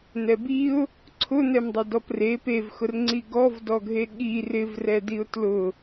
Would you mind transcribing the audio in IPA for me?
n̪ɛbiʊ̯ | ǀʰʊn̪ɛmdˤɪ dɔpre pevxʊr ŋ͡ǀiɡɔvdɔɡʱe ɠir ɪvrɛdiʊ̯ tlʊ

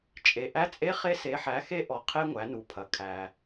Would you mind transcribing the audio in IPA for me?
t͡ʃʼe˩ʔæ˧˥t͡sʼe˧˥ χe˧se˩˧ħæ˩˧xe˧ ʔɔ˩qʰe˧ ŋʷæ˩˧nu˩pʰɐ˩˧ kʰæ˩

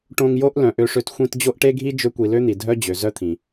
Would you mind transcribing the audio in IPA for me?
ʈõ˧ŋjo˦ʔ lœ̃˨ʔø˧ʂø˧t xʷĩ˧t d͡ʑo˦ʔʈe˦ɡʱi˦ d͡ʒø˦kʷi˧ lø˦n̪i˨ dʱœ˦d͡ʑø˨zœ˦t̪ʰĩ˨

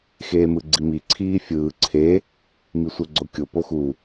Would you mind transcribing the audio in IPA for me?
xeːmɯɡ͡ǀimi ǀʰiːfʲɯː ǀʰe | misʷɛɡ͡ǀokʲo poxu

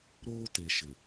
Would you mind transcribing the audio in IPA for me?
ɾoː˦te˨ ʃɪ˨

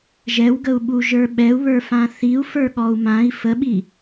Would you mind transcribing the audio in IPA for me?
ʒɛwɡəu̯ɓu ʒə˞ɓɛu̯βə˞ fãθiu̯ fə˞ɠɔu̯mãi̯ fəɓi

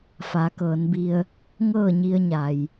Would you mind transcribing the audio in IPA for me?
fa˩˧kɤː˩˧nbi˧ə̯ | ŋɤː˥˨ɲi˧ə̯ɲa˩j

